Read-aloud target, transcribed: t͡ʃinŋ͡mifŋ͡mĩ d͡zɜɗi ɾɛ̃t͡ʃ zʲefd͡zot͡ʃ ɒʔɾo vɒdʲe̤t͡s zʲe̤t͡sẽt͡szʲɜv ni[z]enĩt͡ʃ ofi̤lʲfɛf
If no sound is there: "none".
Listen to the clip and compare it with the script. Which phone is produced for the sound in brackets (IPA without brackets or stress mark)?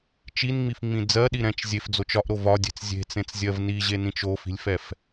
ʑ